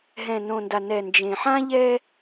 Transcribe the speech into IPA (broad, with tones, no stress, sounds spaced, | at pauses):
ɦ ɛ̃˨ n õ˨ n d a˨ n ɛ˨ n d͡ʒ ẽ˨ ħ ã˦ ʎ ɛ˦